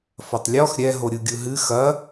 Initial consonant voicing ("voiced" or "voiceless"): voiceless